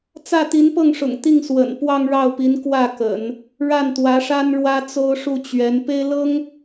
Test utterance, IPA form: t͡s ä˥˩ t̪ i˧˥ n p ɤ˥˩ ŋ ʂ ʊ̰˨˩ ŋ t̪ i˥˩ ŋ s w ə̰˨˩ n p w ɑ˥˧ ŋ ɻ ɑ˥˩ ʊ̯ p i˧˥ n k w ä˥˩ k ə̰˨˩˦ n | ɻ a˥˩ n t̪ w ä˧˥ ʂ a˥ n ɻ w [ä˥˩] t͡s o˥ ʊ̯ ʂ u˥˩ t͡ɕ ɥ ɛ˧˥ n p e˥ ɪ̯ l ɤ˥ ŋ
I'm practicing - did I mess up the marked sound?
yes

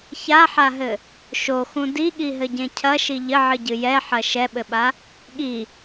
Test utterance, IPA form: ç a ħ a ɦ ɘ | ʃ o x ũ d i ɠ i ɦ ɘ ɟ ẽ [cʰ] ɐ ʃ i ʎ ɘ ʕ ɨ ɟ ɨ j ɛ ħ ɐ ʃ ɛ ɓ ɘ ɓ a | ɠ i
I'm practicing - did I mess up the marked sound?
no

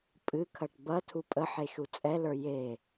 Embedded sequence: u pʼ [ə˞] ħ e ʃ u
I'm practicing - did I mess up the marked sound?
yes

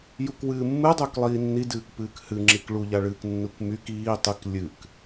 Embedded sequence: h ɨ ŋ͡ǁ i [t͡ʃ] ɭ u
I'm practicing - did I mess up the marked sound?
yes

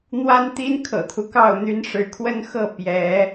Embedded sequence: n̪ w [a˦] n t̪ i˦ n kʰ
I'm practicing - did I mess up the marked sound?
no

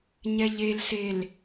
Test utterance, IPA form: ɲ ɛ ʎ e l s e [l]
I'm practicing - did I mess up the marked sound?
no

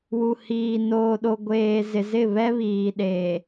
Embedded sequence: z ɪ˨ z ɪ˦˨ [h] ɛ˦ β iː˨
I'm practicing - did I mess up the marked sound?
yes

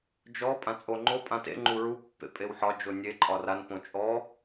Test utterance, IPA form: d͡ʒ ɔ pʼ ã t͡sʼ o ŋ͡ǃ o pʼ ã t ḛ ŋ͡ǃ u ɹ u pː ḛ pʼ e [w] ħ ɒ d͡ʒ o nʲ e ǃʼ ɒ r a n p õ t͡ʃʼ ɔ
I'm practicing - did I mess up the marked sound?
no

